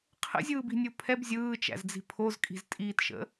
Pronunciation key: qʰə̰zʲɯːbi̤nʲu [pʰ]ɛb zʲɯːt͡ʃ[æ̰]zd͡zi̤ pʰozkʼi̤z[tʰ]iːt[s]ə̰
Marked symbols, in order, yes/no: yes, yes, no, no

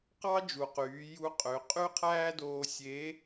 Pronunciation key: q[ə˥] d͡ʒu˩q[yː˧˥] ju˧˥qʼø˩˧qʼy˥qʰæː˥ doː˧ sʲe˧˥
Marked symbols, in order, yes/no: no, no

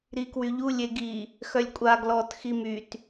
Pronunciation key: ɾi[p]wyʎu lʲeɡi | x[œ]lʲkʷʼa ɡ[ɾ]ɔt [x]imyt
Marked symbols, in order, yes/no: no, yes, no, yes

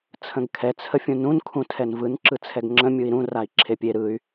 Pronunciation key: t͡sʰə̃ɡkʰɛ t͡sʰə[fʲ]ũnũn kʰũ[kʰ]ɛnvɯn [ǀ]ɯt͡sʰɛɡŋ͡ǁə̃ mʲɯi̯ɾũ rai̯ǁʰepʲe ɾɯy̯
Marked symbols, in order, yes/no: yes, no, no

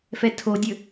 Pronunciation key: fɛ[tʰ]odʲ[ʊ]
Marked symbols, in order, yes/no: yes, no

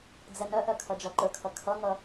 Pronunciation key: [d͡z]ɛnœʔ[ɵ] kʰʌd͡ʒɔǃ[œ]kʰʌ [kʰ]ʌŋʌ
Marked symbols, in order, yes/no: yes, no, no, yes

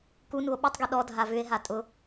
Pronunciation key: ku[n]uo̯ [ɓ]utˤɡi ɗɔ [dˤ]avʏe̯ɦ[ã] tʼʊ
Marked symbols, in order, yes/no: yes, yes, no, no

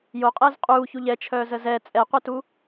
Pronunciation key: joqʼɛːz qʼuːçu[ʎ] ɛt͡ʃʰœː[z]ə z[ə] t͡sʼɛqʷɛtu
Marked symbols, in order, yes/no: yes, yes, no

